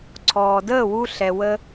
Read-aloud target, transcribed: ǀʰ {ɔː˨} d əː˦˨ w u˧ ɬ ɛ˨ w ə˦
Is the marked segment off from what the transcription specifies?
no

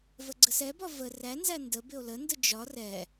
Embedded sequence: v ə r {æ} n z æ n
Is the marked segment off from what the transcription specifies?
no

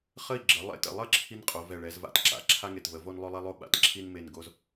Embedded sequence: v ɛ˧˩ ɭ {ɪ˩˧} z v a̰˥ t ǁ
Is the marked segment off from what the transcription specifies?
yes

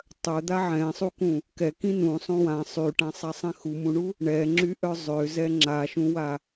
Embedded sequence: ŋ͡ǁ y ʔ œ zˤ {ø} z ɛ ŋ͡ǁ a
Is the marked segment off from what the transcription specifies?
no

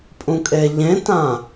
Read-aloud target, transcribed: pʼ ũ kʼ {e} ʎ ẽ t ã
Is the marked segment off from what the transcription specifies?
no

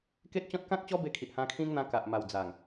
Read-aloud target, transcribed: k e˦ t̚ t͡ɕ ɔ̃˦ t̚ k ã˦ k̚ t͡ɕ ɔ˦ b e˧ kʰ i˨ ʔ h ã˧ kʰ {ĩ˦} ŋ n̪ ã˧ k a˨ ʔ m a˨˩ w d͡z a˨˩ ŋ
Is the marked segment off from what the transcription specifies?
no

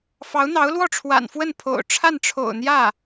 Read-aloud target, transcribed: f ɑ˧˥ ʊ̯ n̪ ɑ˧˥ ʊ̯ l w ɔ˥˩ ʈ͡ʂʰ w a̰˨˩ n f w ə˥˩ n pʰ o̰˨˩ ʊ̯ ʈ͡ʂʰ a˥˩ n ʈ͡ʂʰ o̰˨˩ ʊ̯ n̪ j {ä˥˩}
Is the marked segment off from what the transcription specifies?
no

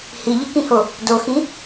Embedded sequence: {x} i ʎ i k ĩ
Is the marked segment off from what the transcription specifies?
yes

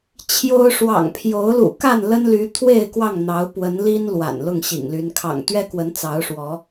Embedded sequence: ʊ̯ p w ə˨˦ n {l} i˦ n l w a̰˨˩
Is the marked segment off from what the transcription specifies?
no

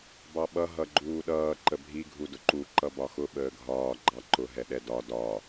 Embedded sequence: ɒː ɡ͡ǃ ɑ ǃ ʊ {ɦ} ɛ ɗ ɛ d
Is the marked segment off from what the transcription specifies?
no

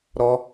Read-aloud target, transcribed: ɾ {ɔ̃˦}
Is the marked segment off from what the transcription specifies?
yes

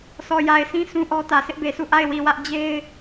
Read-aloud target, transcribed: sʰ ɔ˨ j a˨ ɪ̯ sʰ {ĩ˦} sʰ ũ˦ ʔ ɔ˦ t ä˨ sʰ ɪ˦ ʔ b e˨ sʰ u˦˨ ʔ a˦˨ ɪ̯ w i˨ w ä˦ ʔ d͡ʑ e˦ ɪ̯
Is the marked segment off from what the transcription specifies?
no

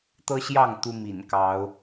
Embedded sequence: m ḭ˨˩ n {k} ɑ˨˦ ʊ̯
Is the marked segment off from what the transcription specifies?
no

